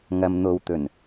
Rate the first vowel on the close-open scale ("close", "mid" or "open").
open